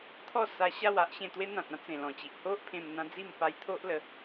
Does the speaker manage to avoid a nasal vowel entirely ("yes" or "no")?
no